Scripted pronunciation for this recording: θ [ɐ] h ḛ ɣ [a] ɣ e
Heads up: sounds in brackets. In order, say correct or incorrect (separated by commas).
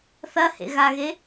correct, correct